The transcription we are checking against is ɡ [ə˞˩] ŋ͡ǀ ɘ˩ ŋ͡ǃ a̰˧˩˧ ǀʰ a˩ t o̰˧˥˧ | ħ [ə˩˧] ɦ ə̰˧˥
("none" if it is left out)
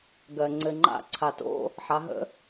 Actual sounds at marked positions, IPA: ɜ˩, a˩˧

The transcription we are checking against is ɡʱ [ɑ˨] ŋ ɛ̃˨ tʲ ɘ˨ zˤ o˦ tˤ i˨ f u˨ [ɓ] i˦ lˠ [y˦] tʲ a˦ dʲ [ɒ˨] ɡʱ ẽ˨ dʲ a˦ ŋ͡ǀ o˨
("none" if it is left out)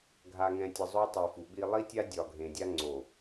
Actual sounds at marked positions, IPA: a˨, ɓ, i˦, ɒ˨

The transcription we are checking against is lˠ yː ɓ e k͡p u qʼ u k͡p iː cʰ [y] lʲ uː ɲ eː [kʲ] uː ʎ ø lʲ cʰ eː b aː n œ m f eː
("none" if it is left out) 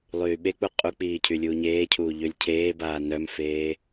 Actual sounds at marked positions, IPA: y, cʰ

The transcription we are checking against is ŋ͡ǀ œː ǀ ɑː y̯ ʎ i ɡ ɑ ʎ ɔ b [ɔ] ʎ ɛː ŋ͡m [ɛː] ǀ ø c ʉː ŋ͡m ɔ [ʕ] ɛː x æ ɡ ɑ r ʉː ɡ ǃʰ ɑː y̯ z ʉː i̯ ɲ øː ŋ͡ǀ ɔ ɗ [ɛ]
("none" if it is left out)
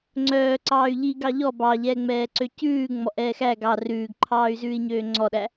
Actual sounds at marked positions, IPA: ɑ, ɛː, ʔ, æ

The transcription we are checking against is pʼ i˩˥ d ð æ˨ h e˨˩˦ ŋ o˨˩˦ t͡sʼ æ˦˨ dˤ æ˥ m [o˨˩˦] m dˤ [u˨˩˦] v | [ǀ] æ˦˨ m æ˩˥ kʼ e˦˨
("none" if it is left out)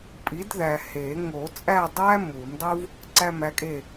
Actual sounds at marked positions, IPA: u˨˩˦, u˥, ǀ

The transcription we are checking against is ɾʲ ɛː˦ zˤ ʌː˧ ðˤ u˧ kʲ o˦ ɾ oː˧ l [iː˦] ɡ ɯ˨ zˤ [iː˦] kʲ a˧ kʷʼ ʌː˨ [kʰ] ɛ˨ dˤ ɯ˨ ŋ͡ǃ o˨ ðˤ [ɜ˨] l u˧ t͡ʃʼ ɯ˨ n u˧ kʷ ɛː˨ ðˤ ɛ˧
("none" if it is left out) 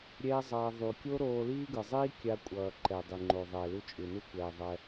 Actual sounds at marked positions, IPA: iː˦, iː˦, ǃ, ɛ˨

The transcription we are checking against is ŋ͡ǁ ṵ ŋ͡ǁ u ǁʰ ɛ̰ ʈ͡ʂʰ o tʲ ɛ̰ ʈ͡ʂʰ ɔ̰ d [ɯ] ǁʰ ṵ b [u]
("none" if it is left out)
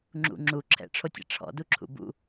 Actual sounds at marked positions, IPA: u, ṵ

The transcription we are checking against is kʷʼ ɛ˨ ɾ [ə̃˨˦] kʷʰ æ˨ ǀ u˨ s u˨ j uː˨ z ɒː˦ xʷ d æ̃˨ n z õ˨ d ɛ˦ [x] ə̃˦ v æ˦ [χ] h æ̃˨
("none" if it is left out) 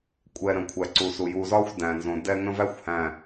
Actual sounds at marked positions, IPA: ə̃˨, ŋ, xʷ

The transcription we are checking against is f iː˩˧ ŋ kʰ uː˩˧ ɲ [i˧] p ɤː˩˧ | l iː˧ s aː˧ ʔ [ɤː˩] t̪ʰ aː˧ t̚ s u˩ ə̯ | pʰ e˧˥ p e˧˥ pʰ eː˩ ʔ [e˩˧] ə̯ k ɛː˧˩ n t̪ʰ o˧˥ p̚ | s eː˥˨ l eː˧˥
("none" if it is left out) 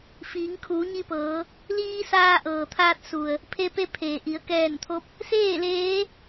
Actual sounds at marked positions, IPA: i˧, ɤː˩, i˩˧

